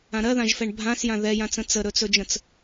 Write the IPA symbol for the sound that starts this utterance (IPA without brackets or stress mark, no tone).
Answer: ã